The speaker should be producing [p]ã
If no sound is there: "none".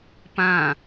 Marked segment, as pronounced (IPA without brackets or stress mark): p